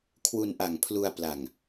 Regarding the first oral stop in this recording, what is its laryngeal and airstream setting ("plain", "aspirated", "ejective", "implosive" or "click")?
aspirated